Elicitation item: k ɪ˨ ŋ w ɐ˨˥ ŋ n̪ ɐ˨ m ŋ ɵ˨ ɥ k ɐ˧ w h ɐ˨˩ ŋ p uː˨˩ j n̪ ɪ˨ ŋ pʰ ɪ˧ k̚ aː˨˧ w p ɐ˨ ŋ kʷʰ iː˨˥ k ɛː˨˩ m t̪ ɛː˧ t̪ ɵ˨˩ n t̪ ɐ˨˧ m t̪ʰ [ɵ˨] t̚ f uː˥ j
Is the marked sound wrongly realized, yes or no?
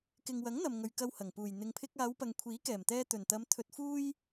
yes